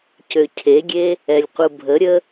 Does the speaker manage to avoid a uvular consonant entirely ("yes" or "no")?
no